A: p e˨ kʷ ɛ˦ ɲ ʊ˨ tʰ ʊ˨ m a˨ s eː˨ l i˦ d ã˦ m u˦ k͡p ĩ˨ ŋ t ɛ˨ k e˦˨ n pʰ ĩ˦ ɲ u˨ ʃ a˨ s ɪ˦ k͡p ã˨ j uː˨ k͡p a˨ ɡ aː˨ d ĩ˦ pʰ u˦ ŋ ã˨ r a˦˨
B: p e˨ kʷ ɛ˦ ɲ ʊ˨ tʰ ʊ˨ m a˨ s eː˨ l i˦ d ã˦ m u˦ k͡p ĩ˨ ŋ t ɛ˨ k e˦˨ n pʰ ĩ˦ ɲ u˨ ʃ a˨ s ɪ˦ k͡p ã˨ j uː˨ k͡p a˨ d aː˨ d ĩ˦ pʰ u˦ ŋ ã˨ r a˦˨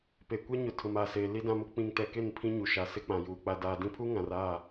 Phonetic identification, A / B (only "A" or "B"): B